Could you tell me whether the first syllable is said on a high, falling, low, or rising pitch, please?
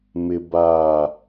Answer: low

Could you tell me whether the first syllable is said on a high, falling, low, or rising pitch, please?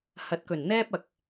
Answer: low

